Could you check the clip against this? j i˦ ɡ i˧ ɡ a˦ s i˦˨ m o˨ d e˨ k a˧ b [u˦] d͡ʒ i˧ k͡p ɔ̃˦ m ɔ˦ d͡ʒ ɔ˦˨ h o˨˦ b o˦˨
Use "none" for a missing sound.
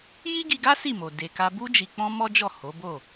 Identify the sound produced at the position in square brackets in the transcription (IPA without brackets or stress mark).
u˦